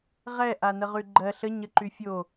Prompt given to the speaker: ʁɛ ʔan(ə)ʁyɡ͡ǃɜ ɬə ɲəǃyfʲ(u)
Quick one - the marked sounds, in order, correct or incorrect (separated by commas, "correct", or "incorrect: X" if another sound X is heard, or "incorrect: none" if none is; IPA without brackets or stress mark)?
correct, incorrect: o